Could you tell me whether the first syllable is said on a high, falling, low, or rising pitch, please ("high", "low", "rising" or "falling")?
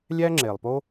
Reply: high